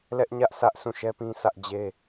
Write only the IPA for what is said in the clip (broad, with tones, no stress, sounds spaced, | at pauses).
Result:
l ɛ˦ ʔ ɲ ä˦ ʔ sʰ ä˦ ʔ sʰ ũ˦˨ ʃ ɛ˦ p ĩ˦ sʰ ä˦ ʔ d͡ʑ e˦